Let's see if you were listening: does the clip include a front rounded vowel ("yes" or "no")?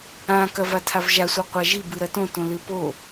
no